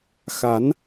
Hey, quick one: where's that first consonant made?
velum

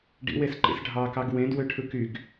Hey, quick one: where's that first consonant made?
retroflex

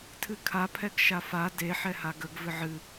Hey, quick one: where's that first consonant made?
tongue tip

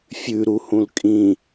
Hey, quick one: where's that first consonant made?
lips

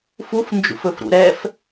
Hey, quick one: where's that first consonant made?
lips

